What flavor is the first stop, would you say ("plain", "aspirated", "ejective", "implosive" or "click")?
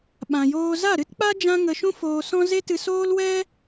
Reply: implosive